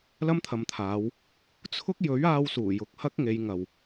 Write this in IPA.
l ɐ˥ m t̪ʰ ɐ˨ m t̪ʰ aː˨˧ w | t͡sʰ ʊ˥ k̚ j ɵ˨˥ ɥ aː˧ w s uː˨˩ j ʊ˨ k̚ h ɐ˥ k̚ ŋ e˨˧ j ŋ ɐ˨ w

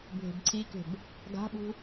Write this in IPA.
bʱ e̤ b ǀʰ i k e̤ b | ɡ a̤ ɓ ṳ

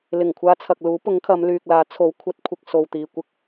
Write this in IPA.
l ɪ˨˩ ŋ kʷʰ aː˧ t͡sʰ ɐ˨ k̚ l uː˨˥ p ʊ˨˥ ŋ kʰ ɐ˨˧ m l yː˨ k̚ l aː˨˥ t͡sʰ o˨˥ w kʷʰ ɐ˨˥ t̚ kʷʰ ɪ˨ k̚ s o˨ w t̪ iː˨ kʷ ɪ˥ k̚

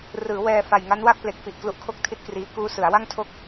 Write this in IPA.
r ɯː˩˦ w ɛː˧ f a˨˩ j ŋ a˦˥ n w a˥˩ k̚ p l e˨˩ k̚ f i˨˩ ʔ k l u˦˥ ʔ kʰ o˥˩ k̚ tʰ i˥˩ t̚ k r iː˦˥ k uː˦˥ s ɯ˩˦ a̯ w a˥˩ ŋ tʰ o˥˩ k̚

